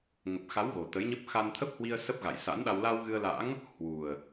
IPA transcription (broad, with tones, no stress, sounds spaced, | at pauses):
ŋ ə˨˩ p̚ x a˨˦ w ɣ o˨˩ t̪ ə˨˦ j ɲ ə˦˥ p̚ x a˧ n t̪ʰ ə˦˥ p̚ h w i˧ ə̯ s ə˦˥ p̚ ɣ a̰˧˨ j s a̰˧˥ n ɗ a˧ w l a˧ w ɣ ɨ˧ ə̯ l a̰˧˥ ŋ | h w u˨˩ ə̯